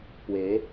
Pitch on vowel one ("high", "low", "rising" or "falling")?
rising